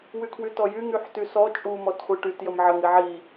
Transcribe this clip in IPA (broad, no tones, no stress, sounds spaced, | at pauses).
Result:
w y kʰ w y t ɔ j y ŋ y ħ t y s ɔ t͡ʃʼ u m ɔ t χʷ i ʈ y t j ə m ʕ ə ŋ i ʕ i